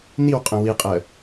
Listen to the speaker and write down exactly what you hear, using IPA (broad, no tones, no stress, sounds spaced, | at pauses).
n i w qʼ ə̃ w i qʼ ɜ